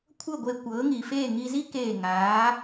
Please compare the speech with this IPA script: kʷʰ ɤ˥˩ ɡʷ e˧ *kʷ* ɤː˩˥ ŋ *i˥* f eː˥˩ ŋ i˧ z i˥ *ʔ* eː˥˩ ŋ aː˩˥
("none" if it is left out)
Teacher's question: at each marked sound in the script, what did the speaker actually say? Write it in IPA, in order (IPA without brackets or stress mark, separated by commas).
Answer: kʷ, i˩, k